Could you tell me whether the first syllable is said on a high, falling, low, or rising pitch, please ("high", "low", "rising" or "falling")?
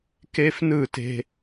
high